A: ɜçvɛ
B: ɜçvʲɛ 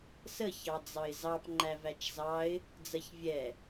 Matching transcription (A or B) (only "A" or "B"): B